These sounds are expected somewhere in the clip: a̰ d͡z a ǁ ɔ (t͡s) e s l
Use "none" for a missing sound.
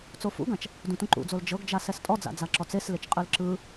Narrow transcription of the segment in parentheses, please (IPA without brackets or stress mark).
t͡s